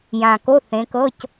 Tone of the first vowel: low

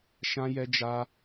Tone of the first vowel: high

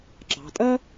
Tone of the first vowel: low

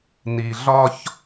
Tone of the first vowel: low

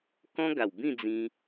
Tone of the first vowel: high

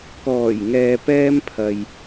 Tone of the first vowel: low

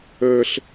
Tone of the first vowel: high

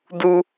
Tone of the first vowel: high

